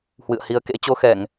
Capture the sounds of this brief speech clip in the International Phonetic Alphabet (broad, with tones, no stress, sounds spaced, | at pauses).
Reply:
h w ɨ̰˧˨ ə̯ h i˨˦ ə̯ k ḛ˧˥ t͡ɕ o˧ x ɛ˧˩˨ ŋ